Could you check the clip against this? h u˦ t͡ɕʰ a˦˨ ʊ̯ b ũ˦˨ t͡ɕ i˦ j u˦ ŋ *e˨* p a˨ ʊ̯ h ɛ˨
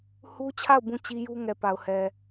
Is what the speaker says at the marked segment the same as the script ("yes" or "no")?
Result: no